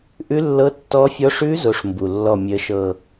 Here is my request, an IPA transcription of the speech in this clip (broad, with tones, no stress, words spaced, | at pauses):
ʔʉ˦˥lːɤ˦˥tːɔ˦˥fʲɔ˦˥ ʂʉ˦˥ zo˦˥ʂmbu˨˩lːɔ˥˧ mʲə˦˥ʃɤ˥˧